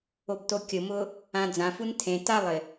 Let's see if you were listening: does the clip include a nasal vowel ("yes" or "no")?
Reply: yes